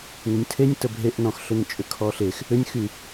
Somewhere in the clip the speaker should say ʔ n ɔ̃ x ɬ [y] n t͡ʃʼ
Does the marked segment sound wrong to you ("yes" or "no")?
yes